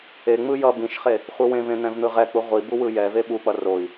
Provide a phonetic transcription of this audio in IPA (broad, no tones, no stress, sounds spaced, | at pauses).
e ŋ͡m ɯ j ʌ b ĩ ʃ χ e | χʷ ɯ w ẽ v ẽ n̪ ɛ̃ v n̪ ɯ ʁ ɛ k͡p u ʁʷ i b u w ɯ j ɛ v e ɓ u k͡p ʌ r o i̯